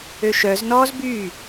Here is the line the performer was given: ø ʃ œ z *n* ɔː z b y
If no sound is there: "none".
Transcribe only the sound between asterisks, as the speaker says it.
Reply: n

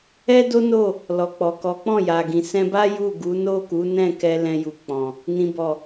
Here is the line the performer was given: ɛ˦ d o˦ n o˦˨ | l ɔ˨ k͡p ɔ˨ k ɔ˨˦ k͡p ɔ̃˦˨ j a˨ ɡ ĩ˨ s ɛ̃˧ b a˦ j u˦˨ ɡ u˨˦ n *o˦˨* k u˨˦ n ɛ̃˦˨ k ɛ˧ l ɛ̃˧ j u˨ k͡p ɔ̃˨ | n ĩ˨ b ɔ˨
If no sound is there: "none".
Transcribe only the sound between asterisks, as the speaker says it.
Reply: o˦˨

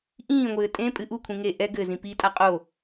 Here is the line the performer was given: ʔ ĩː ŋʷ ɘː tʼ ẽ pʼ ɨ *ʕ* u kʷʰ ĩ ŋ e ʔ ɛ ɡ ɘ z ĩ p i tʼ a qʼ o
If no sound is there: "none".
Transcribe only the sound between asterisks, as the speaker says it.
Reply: ʔ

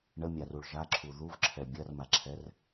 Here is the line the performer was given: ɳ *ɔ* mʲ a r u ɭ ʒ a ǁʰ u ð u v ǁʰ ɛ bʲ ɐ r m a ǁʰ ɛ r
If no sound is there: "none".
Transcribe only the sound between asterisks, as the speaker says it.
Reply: ə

